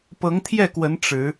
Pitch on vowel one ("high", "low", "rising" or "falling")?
rising